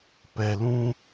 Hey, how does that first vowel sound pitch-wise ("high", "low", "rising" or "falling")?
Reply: low